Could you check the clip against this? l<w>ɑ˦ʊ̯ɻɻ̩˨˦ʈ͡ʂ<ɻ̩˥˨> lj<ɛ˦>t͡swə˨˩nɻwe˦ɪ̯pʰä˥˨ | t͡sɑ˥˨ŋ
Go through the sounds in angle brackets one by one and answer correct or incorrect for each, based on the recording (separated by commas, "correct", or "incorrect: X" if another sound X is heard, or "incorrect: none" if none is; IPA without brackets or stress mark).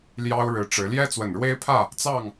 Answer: incorrect: j, incorrect: ɻ̩˨˦, correct